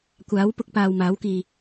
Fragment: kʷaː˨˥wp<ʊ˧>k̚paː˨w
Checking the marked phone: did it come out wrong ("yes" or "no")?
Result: no